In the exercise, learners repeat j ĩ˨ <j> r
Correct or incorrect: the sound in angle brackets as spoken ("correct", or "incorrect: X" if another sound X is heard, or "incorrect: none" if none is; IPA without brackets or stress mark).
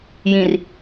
incorrect: none